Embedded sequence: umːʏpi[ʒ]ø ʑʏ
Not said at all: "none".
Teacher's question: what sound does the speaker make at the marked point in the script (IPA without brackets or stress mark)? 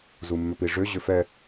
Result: ʐ